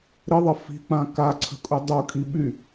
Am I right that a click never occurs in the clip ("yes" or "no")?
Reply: no